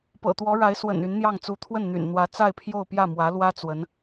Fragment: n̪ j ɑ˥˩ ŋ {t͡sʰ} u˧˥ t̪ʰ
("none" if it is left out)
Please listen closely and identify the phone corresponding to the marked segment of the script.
t͡s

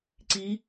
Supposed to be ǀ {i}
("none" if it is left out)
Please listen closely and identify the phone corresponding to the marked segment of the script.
i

